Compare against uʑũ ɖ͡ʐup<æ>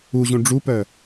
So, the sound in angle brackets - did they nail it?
no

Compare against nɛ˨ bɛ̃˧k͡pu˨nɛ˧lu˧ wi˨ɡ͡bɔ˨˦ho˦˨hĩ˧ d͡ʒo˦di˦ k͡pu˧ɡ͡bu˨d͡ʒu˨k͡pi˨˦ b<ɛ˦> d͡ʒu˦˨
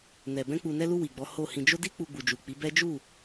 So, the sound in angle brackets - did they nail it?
yes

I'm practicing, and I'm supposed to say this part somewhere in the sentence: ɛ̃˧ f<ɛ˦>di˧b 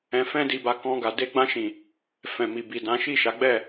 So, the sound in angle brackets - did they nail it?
no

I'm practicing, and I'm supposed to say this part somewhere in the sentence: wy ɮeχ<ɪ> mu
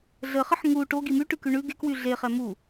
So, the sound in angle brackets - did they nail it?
no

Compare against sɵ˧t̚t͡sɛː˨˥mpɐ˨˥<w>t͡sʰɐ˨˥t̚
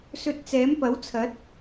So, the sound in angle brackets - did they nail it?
yes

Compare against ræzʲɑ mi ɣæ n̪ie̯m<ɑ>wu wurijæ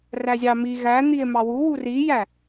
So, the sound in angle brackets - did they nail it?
yes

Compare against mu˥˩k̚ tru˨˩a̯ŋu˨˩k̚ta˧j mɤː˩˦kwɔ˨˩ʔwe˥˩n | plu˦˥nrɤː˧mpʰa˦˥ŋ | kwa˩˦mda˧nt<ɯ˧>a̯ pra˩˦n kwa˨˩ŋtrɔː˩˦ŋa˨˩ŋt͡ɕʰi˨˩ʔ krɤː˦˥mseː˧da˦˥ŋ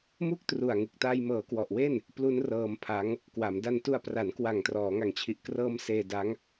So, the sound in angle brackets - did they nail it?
no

